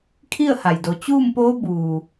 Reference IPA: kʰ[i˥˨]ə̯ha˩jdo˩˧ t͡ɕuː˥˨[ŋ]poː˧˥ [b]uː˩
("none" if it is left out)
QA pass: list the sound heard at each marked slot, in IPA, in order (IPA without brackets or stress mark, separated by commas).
i˥˨, m, b